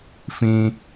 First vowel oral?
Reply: no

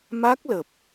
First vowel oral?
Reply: yes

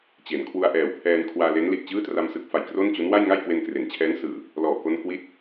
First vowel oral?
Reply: yes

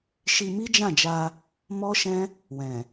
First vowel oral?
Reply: yes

